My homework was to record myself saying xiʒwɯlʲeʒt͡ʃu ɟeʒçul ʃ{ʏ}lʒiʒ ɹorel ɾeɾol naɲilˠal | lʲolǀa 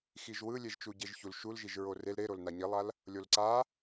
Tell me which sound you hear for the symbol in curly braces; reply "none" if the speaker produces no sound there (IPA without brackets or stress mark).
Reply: u